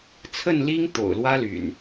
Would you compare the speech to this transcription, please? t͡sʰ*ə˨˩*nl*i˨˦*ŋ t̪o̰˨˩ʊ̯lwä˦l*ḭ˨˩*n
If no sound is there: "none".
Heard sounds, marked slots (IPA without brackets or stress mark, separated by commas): ə˥˨, i˦, y̰˨˩